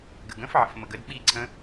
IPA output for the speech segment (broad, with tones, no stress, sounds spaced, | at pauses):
ɡ ə̰˩ ɡ ə̃˧˥ f ʕ ə̰˩ f m ə˩ ɡ ə˩˥ d ɓ i˥˨ ǀʰ ə̃˧˥